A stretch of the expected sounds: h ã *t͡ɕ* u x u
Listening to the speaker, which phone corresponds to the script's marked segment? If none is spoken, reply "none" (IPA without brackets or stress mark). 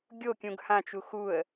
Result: t͡ʃ